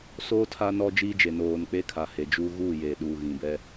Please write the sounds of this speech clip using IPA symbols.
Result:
s oː˦ tʰ a˦ n ɔ˦ d͡ʒ iː˦ d͡ʒ e˨ n oː˨ n k͡p e˦ kʰ a˨ h e˨ d͡ʒ uː˦ ɣ uː˦˨ j e˨ ɗ uː˨ ɣ ĩ˨ b ɛ˦

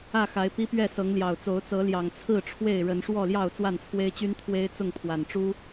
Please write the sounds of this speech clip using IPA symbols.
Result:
ä˥˨ x a˨˦ ɪ̯ p i˦ p ɥ ɛ˥˨ s ɤ˨˦ ŋ l j ɑ˨˩ ʊ̯ t͡s o˨˦ ʊ̯ t͡s ɤ˨˦ l j ɑ˨˩ ŋ t͡sʰ ɹ̩˥˨ ʈ͡ʂʰ w e˥˨ ɪ̯ ɻ ə˨˦ n ʂ w ɔ˥˨ l j ɑ˥˨ ʊ̯ t͡s w a˥˨ n t͡sʰ w e˦ ɪ̯ t͡ɕ y˦ n t̪ʰ w e˦ ɪ̯ t͡s ʊ˥˨ ŋ pʰ w a˨˩ n ʈ͡ʂ u˦

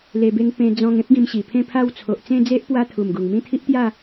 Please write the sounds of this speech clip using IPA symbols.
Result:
l e˧ b e˦ ŋ p ẽ˧ d͡z ɔ̃˧ ŋ ẽ˦ p̚ ɡ ĩ˧ m ɕ i˨˩ pʰ ẽ˥˧ pʰ a˥˧ w t͡sʰ o˨ ʔ t͡s ẽ˥˧ d͡z e˦ ʔ p w a˦ t̪ʰ u˨˩ m ɡ u˨˩ ŋ m ĩ˥˧ t̪ʰ i˦ ʔ t̪ j a˥˧

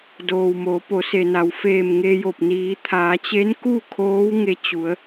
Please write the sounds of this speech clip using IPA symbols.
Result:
d oː˩ w m o˩˧ p o˩˧ s e˩ n a˩˧ w f eː˧˩ m ŋ e˧ j o˧˩ p̚ n iː˩˧ t̪ʰ aː˩˧ t͡ɕ e˧˥ n k u˥˨ kʰ oː˧˥ w ŋ e˧ t͡ɕ u˩˧ ə̯

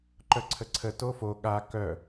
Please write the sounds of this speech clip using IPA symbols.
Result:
ǃ œ ǀʰ ə ǀʰ ə t o f o ɠ a k œ

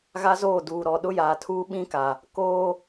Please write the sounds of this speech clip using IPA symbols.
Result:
ɣ a˦ z oː˦˨ d uː˨ ɾ ɔ˨ ɗ ʊ˦ j aː˨ tʰ uː˦ ɓ ĩ˦ k a˨ | k oː˦

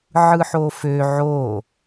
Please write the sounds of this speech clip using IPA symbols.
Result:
ʕ ɯ ħ o f ø ʕ o

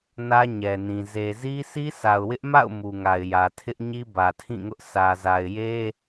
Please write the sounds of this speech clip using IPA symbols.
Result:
n ä˦ ɲ ɛ˨ n ĩ˨ z e˨ z i˦ s i˦ sʰ a˨ ʊ̯ w ɪ˦ ʔ m a̰˦˨ ʊ̯ m u˨ ŋ a˨ ɪ̯ j ä˨ tʰ ɪ˦ ʔ ɲ i˦ b ä˨ tʰ ĩ˦˨ ŋ ʊ˦ ʔ sʰ ä˨ z a˨ ɪ̯ j e˦

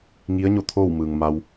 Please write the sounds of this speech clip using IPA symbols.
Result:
ŋ i˧˥ ə̯ ɲ o˥˨ t̪ʰ oː˥˨ w m ɯː˩ ŋ m a˧ w

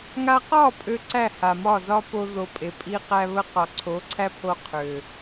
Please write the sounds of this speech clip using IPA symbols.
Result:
ŋ a˧ q ɒ˦˨ pʼ ø˦ ǀ æ˦˨ h a˨ m ɒ˦˨ z ɒ˦ p o˧ ð o˧ pʼ e˨ pʼ i˦ q æ˧ β ə˧ q ɒ˨ ǀʰ o˨˦ ǀʰ æ˦ pʰ o˧ qʰ ø˨

